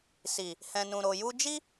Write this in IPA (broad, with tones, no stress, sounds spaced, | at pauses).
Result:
s i˨ | h ɛ̃˨ n ũ˨ ɾ o˨ j u˧ d͡ʒ i˦